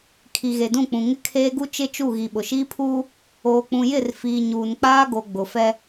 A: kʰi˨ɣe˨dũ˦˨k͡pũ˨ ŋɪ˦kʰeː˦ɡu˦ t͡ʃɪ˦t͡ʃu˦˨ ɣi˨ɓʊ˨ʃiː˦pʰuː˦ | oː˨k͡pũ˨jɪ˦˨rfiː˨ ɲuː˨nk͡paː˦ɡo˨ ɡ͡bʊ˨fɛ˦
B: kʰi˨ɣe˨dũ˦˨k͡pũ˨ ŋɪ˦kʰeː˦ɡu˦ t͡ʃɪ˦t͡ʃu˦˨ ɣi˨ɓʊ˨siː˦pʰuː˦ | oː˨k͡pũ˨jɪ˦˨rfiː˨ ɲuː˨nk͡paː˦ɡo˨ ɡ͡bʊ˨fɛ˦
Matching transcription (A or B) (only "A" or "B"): A